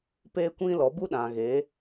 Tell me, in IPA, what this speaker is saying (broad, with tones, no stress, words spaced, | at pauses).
peː˦kʷĩ˦lɔ˨˦ bu˦ɗã˨ɣe˨˦